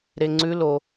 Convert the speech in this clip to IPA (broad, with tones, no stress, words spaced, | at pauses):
ɾe˧ŋ͡ǀʉ˦˥ lo˧